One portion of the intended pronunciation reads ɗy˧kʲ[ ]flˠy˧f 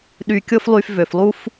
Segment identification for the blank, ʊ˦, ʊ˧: ʊ˦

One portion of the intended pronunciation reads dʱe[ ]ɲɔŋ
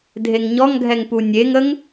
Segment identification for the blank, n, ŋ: ŋ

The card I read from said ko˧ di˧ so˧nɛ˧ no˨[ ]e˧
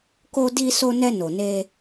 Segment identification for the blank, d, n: n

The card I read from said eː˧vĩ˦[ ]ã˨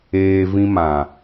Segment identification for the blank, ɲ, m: m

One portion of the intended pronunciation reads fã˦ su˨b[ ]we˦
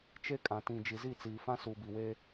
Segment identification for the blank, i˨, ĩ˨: i˨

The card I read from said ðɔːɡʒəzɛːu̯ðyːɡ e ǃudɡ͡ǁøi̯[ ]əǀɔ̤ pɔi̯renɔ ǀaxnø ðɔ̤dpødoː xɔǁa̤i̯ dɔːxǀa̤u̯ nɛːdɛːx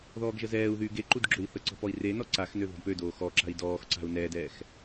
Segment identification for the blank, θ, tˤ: θ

